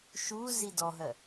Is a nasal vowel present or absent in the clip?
absent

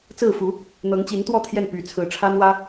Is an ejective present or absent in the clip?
absent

